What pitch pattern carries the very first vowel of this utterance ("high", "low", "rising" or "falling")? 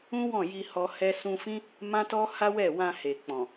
high